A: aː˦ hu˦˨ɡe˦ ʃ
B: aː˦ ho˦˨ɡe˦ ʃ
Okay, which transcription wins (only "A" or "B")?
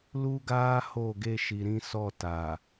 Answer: B